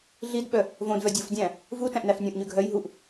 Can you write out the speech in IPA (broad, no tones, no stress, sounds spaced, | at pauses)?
ɮ i d ɓ œ | v õ d v œ dʲ o f dʲ æ̃ | v u t æ̃ ʔ n æ f nʲ õ ʔ ɲ ʉ ɡʱ œ j ɦ u ʔ